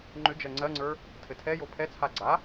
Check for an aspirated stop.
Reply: present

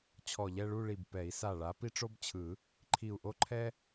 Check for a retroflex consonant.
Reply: present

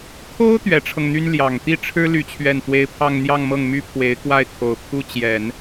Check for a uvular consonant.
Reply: absent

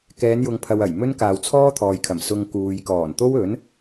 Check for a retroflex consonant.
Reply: absent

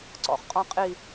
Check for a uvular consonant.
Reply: present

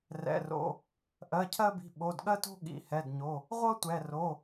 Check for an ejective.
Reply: absent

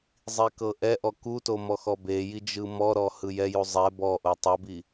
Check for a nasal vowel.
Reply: absent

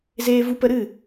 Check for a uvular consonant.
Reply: absent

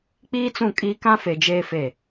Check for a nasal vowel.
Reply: present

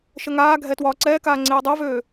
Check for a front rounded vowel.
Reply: present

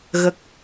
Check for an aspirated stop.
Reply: absent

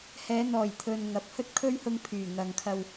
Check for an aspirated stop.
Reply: present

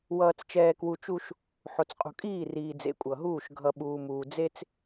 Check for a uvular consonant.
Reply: present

